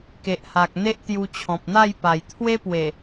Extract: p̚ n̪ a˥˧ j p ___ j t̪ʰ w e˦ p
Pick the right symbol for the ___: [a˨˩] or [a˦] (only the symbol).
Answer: a˨˩